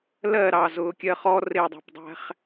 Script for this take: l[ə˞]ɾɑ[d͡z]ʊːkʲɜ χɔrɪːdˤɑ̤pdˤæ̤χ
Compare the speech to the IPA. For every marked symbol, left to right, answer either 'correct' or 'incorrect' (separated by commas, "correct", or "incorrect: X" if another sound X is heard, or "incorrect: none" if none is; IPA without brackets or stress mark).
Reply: incorrect: ɜ, incorrect: z